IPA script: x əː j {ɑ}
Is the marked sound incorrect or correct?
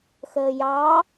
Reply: correct